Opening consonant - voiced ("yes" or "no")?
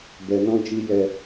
yes